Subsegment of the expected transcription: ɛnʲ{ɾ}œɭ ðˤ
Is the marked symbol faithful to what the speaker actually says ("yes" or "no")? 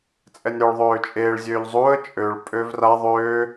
yes